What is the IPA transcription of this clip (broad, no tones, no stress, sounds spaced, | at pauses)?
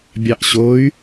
bʲ ɑ ʔ ɕ o y̯